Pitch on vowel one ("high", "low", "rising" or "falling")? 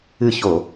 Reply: falling